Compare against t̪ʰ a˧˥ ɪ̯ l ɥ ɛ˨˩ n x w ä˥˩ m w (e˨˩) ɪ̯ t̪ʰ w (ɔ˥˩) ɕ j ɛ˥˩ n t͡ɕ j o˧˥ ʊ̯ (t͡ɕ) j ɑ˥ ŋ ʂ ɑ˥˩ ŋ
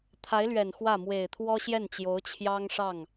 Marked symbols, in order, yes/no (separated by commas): yes, no, no